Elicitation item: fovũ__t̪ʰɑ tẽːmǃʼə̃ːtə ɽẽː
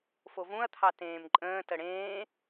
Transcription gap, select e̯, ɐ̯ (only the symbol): ɐ̯